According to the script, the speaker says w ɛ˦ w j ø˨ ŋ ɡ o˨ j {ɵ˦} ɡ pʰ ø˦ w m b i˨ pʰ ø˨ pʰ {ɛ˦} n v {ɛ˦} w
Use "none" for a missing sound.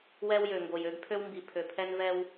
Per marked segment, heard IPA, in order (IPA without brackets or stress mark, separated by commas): ø˦, ɛ˦, ɛ˦